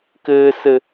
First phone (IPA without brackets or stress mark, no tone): k